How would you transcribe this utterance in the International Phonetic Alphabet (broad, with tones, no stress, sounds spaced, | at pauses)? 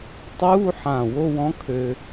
tˤ uː˧˥˧ ħ ã˧˩ w o˧˥˧ w ɔ̃˧˥ kʰ ø˧